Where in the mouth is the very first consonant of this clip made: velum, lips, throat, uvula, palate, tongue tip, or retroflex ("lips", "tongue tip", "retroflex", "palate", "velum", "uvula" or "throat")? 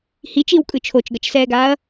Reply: throat